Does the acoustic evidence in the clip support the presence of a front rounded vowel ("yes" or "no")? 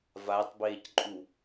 no